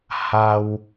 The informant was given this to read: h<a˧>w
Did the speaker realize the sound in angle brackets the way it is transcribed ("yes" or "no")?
yes